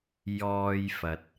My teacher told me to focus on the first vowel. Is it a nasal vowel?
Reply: no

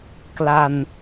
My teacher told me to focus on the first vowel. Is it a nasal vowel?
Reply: no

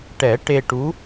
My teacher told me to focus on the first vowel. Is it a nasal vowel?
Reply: no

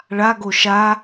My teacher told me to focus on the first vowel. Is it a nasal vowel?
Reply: no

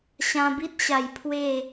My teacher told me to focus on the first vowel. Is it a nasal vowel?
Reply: yes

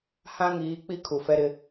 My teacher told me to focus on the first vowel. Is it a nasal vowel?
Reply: yes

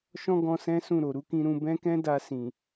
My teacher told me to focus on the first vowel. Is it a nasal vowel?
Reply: yes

